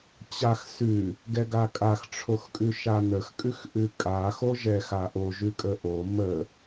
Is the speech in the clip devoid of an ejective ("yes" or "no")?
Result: no